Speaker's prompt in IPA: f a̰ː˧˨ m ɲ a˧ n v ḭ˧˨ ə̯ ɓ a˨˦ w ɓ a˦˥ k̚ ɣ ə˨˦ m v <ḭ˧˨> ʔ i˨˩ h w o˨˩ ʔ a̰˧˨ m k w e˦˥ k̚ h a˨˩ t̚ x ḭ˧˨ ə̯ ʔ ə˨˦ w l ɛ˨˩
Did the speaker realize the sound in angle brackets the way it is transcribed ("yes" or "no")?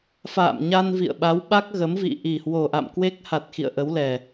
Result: yes